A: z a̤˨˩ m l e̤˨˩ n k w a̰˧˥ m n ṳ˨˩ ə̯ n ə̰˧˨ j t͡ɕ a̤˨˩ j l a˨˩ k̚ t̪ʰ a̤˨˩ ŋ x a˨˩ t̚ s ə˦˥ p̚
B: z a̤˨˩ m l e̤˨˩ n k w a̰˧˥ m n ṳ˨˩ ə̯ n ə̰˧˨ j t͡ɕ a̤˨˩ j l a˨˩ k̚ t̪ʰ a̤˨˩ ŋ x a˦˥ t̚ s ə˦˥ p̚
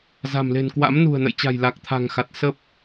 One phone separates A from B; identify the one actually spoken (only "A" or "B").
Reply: A